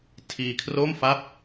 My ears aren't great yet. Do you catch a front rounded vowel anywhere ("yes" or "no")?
no